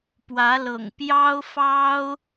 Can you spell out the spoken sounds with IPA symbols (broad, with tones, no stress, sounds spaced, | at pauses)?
p w ä˧˥ l ɤ̰˨˩ ŋ p j ɑ˥ ʊ̯ f ɑ˥ ʊ̯